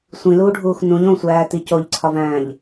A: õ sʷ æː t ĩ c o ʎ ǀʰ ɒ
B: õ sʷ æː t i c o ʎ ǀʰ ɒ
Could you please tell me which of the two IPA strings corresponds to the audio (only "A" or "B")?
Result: B